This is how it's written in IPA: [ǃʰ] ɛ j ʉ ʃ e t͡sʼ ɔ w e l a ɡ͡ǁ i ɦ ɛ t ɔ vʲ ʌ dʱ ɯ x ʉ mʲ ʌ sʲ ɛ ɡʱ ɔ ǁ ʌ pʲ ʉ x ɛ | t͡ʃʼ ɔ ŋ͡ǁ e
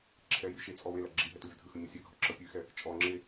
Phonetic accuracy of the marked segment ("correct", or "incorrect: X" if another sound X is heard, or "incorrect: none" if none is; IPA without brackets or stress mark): incorrect: ǁʰ